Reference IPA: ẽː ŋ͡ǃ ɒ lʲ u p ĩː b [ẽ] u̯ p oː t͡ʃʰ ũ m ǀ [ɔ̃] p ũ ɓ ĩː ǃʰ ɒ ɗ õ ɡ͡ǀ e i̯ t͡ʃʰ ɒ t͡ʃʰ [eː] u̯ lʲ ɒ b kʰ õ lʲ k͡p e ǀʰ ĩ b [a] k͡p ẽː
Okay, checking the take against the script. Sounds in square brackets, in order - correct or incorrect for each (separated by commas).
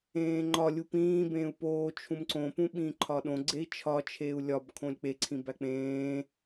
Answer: incorrect, incorrect, correct, incorrect